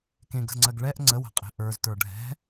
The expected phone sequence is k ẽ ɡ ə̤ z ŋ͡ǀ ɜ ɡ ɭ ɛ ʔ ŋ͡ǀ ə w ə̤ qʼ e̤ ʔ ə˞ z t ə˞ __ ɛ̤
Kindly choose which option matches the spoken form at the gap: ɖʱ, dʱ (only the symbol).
ɖʱ